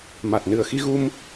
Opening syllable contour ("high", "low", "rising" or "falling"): low